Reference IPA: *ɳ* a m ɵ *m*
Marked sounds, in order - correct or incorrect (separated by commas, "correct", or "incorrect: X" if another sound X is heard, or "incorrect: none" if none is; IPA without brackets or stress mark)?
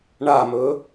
correct, incorrect: none